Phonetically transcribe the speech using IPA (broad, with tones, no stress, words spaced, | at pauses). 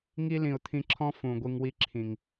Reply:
ŋi˦lĩ˨ʊ̯t̪ʰĩ˧ǁʰɔ̃˦ fũ˨ ɡʷi˧ŋwi˦ǁʰĩ˨ŋ